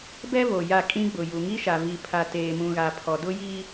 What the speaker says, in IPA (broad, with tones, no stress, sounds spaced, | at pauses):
b ɛ˦ v o˨ j a˦˨ kʼ ĩ˦ ɡ͡b ʊ˨ j u˨ ŋ i˦ ʃ a˨ v i˨ pʰ a˨ t eː˨ m ũ˨ ɣ a˨ pʰ ɔ˨ d ʊ˦ j i˦